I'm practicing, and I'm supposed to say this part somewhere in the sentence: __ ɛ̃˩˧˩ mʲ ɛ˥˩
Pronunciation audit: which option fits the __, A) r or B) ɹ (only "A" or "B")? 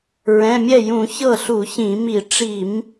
B